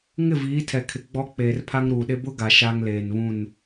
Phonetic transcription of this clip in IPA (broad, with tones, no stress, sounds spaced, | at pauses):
ŋ ɪ˦˨ v iː˨˦ tʰ ɛ˨ kʰ ɪ˨ ɡ͡b ɔ˦ k͡p eː˨ r pʰ a˦ ŋ ɾ uː˨ ɗ e˦ b ʊ˦ ɡ a˨ ʃ a˦ ŋ l eː˨ n β ũ˦˨ n